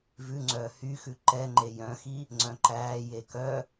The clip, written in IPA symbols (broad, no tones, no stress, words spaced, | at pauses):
vʉŋ͡ǀœː hyxʉ ǃɛŋ͡ǃe jœ̃xi | ŋ͡ǀœ̃ǃæːje kœ